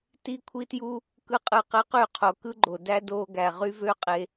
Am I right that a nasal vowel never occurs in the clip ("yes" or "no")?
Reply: yes